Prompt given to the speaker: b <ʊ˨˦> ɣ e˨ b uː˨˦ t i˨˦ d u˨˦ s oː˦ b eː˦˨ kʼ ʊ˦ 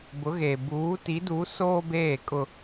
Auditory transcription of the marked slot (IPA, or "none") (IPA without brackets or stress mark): ʊ˨˦